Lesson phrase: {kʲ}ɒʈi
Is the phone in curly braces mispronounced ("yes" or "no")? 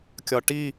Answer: no